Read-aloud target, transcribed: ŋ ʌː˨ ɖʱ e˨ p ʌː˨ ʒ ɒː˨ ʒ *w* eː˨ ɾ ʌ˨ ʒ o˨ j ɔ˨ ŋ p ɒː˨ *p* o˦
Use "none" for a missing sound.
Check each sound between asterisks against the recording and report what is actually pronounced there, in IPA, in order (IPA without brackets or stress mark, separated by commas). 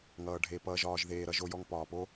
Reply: ð, p